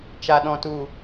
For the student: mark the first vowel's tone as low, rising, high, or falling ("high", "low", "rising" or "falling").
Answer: low